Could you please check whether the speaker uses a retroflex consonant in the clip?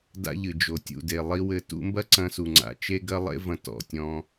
no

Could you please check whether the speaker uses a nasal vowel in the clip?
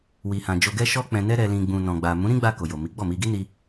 yes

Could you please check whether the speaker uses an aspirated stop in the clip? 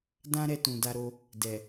no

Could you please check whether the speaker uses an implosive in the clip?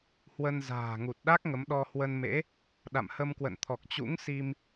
yes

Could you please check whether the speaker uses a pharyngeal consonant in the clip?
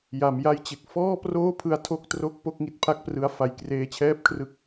no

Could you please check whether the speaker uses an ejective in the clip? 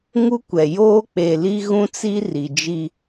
no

